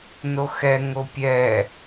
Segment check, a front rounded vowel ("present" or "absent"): absent